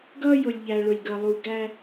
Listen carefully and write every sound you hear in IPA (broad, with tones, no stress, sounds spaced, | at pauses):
ɡ ʌː˦ j ʊ˨ lʲ ʎ æ˨ ɭ ʊ˨ lʲ ɡ ʌ˨ lˠ u˨ ɡ æ˦